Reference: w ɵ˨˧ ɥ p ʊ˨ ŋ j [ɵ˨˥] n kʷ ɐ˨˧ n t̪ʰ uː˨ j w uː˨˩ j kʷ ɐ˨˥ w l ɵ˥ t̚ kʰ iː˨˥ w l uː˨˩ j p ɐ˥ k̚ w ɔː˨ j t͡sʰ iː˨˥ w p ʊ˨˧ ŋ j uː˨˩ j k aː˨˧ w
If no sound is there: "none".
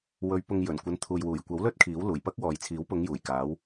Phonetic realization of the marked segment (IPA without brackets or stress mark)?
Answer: ɵ˨˩